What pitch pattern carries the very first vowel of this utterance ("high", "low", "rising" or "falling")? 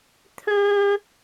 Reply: high